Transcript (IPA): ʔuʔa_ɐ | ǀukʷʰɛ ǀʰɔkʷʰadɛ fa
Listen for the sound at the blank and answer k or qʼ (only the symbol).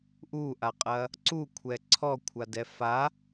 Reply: qʼ